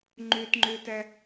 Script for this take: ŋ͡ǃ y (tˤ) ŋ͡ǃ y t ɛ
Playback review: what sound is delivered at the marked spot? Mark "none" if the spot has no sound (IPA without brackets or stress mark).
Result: t